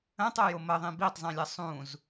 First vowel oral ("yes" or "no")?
no